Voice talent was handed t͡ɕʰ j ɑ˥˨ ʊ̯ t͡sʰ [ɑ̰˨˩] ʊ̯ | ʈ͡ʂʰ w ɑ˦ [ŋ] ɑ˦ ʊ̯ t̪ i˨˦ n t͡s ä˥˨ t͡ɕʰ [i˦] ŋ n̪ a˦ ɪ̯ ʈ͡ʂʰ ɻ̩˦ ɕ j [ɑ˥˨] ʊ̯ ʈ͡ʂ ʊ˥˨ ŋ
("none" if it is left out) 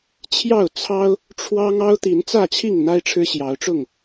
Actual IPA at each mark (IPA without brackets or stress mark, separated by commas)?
ɑ˦, ŋ, i˥˨, ɑ˨˦